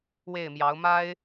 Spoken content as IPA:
we˥˩ɪ̯mjɑ˧˥ʊ̯ ma˥ɪ̯

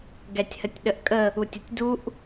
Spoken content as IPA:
ɡɛtʲhətʲɗəʔkʼə | utʲətʲduʔ

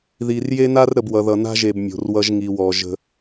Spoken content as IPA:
ði˨rje˦na˦r ɾə˨b wʌ˨ðʌ˨ na̤˦ʒe˨b mʲo̤˨rwʌ˦ʒ ŋi˨wɔ˨ ʒə̤˦

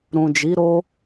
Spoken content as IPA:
ɾũ˨d͡ʒi˨˦ɾo˦

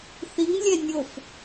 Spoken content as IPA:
θiŋlʲɛ nʲof

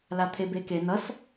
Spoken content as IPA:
lat̪ʰebeke nʌs

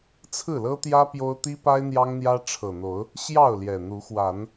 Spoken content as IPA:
t͡sʰɹ̩˥˨lɤ˦t̪jä˦ pjo˦ʊ̯ t̪i˦pa˦ɪ̯ n̪jɑ˦ŋn̪jä˦ ʈ͡ʂʰɤ˨˩ n̪o˨˦ʊ̯ | ɕjɑ˥˨ʊ̯ljɛ˨˩n̪u˨˦xwa˨˦n

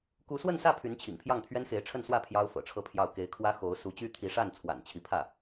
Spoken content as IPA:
ku˧˥swə˥˧nsä˥˩ pʰy˧˥nt͡ɕʰḭ˨˩ŋpʰjɑ˥˩ŋ t̪ʰɥɛ˥nxe˧˥ɪ̯ʈ͡ʂʰə˥˧nswä˥˩ pʰjɑ˥ʊ̯fɤ̰˨˩ʈ͡ʂʰɤ˥˧pʰjɑ˥˩ʊ̯ ke˧˥ɪ̯kʰwä˥xo˧˥ʊ̯ su˧˥t͡ɕy˥ t̪ʰi˧˥ʂa˥˩n t͡sʰwa̰˨˩nt͡ɕʰi˧˥pʰä˥˩

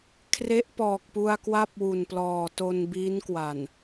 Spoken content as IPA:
kʰre˦˥ʔpɔː˨˩k̚pu˧a̯kwa˥˩p̚ wu˨˩nplɔː˨˩ to˧nbiː˦˥nkwa˨˩n

